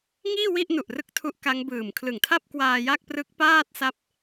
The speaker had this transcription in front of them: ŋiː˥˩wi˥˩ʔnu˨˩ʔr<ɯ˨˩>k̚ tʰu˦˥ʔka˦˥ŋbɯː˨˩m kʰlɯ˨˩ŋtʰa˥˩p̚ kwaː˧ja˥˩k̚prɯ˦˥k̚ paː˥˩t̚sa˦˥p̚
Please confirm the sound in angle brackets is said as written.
no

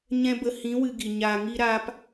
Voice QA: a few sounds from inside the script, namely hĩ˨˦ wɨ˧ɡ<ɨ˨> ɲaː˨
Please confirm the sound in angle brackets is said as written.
no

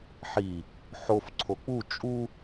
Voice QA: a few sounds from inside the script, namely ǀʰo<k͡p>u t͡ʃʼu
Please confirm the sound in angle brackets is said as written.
yes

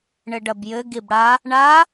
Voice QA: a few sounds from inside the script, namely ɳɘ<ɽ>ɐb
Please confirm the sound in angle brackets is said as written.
no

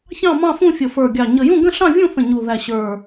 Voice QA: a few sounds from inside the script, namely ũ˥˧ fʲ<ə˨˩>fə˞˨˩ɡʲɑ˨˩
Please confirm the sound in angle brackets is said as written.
yes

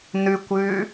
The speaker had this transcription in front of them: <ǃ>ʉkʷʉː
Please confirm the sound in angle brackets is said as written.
no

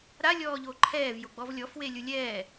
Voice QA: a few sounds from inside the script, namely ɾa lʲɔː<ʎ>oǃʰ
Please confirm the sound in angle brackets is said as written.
yes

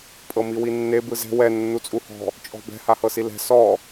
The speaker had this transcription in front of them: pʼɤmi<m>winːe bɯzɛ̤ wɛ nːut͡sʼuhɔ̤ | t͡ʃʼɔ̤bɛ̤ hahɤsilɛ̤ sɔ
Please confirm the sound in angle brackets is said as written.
no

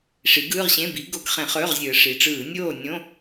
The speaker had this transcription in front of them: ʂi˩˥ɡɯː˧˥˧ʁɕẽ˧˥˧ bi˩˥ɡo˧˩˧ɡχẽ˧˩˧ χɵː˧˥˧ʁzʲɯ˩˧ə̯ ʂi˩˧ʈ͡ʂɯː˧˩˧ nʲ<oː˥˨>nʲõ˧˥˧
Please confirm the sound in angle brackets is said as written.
yes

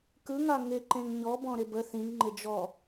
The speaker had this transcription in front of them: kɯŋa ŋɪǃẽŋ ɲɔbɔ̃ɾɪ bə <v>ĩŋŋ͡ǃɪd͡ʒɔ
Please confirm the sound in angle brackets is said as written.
no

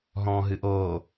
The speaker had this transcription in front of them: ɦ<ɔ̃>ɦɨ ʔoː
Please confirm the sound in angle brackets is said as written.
yes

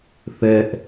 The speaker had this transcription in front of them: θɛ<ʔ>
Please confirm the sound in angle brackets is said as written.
yes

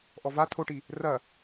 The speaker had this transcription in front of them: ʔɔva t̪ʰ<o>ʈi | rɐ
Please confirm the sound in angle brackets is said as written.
yes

